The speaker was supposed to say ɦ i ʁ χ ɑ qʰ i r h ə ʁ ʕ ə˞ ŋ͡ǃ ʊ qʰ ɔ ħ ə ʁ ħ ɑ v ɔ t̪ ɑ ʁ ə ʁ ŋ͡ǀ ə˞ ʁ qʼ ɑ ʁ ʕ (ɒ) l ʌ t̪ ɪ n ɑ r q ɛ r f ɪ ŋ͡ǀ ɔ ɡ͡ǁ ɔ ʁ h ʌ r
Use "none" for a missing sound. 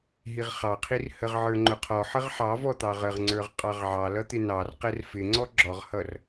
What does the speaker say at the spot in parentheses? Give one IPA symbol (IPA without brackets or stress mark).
ɑ